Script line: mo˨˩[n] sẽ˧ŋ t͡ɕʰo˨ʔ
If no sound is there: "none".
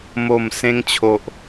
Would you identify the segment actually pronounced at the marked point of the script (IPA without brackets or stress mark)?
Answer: m